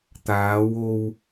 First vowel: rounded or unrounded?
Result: unrounded